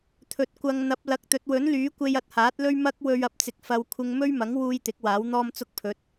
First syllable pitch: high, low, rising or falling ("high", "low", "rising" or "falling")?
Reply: rising